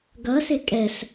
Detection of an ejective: present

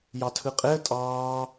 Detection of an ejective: present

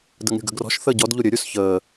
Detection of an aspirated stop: absent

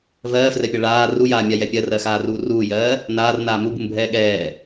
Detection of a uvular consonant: absent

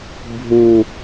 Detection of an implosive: absent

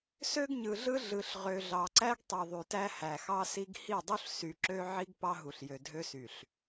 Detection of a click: present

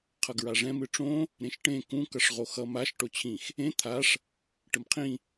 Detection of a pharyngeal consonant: absent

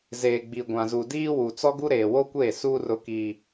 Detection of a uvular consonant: absent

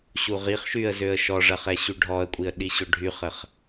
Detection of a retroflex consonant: present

